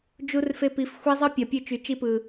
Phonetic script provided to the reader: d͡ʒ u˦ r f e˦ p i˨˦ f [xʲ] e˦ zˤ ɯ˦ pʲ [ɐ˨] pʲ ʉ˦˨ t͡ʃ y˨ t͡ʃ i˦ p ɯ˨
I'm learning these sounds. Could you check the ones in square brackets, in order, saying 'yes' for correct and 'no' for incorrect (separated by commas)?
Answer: no, yes